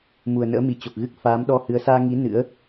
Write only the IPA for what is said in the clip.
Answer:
m u˨˩ ə̯ n ə̰ː˧˥ m i˨˩ t͡ɕ o˨˩ k̚ ɣ ɨ˦˥ k̚ f aː˨˦ m ɗ ɔ˧ h ɨ˨˦ ə̯ s aː˧ ŋ i˨˦ n ɨ̰˧˥ ə̯

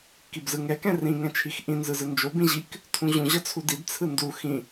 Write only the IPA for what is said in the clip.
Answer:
k i b z ɯ ŋ ɛ k ɛ̃ r ĩ ŋ ɛ̃ t͡ʃʰ i x ʔ ĩ n z ɯ z ɯ n d͡ʒ o b ĩ ʑ i k | tʰ ũ ʑ ũ ʑ ʌ t͡sʰ u d i d t͡sʰ ɯ n d u x ĩ

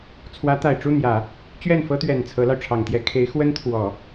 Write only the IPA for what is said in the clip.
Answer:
t͡sʰ w ä˧˥ t̪ a˨˩ ɪ̯ ʈ͡ʂ u˥˩ n̪ j ä˨˩˦ | t͡ɕ ɥ ɛ˥˩ n f ɤ˥ t̪ ɥ ɛ˨˩ n t͡sʰ ɤ˧˥ l ɑ˧ ʊ̯ ʈ͡ʂʰ ɑ˨˩ ŋ t̪ j ɛ˥ kʰ e˧˥ ɪ̯ x w ə˥ n t̪ʰ w ɔ˨˩˦

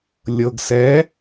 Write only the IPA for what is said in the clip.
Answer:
lʲ ɤ ɡ s ɛ

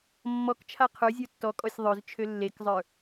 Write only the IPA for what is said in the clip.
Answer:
mː ɔ k t͡ʃʰ a qʰ ə˞ zʲ ə˞ tː ɔ kʼ ɔ sʲ ðˤ ø z t͡ʃʰ ø lː e k zˤ ə˞

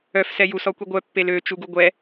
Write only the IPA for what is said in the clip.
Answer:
œ f s ɛ j u s ɔ kʷ i ɡʷ œ pː e l ø t͡ʃ u ɡ u ɡʷ ɛ

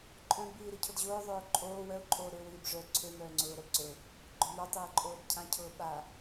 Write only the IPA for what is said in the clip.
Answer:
ǃʼ œ̃ ɡ b iː ɾ i cʰ o d ʑ ʊː ðˤ ʊː ǃʼ oː w œ ʊ̯ ǃʼ oː ɾ ø w iː b ʐ œ ǀʰ ø m œː ŋ͡ǀ ʊː ɾ œ b ǀ ø ʊ̯ | ɡ͡ǃ ʊ m œ tˤ iː ǃʼ oː b cʰ ã cʰ ʊː ɓ a

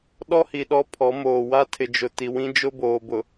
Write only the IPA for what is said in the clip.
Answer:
ɗ ɔ˦ h i˨ ɗ ɔ˦ pʰ ɔ˨˦ m oː˨ w a˦ tʰ ɪ˨ d͡ʒ ʊ˨ t i˨ w ĩ˦ d͡ʒ ʊ˦ b oː˨ b ʊ˨

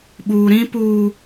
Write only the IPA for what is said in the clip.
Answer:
ɓ uː˨ ɾ ĩ˦ p uː˨

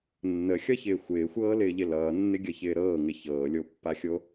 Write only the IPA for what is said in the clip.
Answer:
nː ə xʲ ʌ ç ɪː xʷ ɪː xʷ ɤː l ɪː ʎ ɪ l ʌː nː ɪ ɡʲ ʌ ç ɪː ɾ ɤː ŋ ɪ ç ɤː lʲ o pː a xʲ o

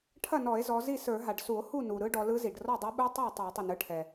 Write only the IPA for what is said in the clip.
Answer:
ʈʰ ɐ˥˩ n ɔ˧˩˧ e̯ z ɔ˩˧ z i˥˩ s ə˞˧˩˧ ɦ a˩ ɖ s u˧˩˧ o̯ h u˥˩ n u˩ ɾ ɯ˧˥ ɖ ɔ˩˧ l ɯ˧˥ z i˩ ɖ r ɔ˥˩ dˤ ɐ˧˥ ɓ u˧˥ tˤ a˥˩ tˤ a˧˩˧ tˤ i˩ n ɯ˩˧ ʈʰ ɛ˩

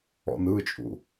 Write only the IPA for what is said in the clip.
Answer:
ɔ̰ n ɯ t͡ʃʼ ṵ

